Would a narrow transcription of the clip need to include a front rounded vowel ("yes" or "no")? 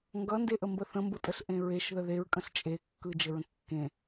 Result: no